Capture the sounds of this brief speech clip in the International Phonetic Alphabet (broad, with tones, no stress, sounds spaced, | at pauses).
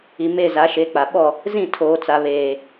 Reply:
i˨ m e˦˨ z a˨˦ ʃ e˨˦ k͡p a˨ ɓ ɔ˦˨ | z ĩ˦˨ tʰ oː˨ t͡s a˨ β eː˨